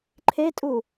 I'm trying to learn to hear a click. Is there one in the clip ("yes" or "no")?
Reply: yes